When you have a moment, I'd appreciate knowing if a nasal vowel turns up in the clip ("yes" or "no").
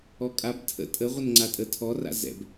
no